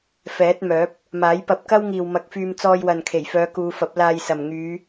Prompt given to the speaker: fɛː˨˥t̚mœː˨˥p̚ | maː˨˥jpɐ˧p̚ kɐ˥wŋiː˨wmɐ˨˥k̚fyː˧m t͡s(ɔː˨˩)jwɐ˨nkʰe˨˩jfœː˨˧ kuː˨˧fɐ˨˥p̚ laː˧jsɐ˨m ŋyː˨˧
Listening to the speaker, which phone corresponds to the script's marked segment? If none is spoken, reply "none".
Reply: ɔː˧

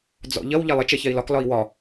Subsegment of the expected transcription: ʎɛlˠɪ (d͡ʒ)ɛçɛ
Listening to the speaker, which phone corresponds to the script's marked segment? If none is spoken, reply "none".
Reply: t͡ʃ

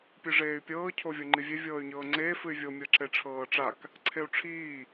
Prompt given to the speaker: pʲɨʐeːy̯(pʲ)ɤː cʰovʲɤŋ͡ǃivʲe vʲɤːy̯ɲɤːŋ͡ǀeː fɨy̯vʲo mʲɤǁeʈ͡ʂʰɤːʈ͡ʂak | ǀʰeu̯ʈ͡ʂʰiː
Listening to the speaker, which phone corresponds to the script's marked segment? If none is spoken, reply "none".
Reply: pʲ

